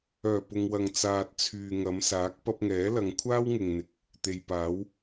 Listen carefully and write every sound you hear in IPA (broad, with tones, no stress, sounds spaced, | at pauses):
œː˨˩ p ʊ˨ ŋ w ɐ˨ ŋ t͡s aː˨ t̚ t͡sʰ yː˨ ŋ ɐ˨˧ m s aː˨˥ k̚ p ɐ˧ p̚ ŋ ɛː˨˥ l ɐ˨˧ ŋ kʷʰ aː˥ w ŋ ɪ˨ ŋ n̪ ɪ˨˥ k̚ | t̪ e˨ j p aː˨˥ w